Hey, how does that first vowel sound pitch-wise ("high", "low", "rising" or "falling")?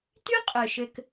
high